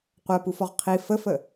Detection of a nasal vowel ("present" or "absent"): absent